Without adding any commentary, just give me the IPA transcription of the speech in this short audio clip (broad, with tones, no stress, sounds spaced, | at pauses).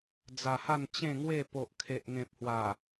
d͡z a˨˩ h a˥˧ n t͡ɕ ẽ˥˧ ŋ w e˥˧ p o˨ ʔ kʰ e˨ ʔ ŋ ẽ˨ p̚ h w a˨˩